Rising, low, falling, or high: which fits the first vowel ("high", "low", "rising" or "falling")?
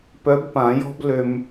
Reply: rising